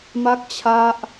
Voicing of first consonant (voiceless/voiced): voiced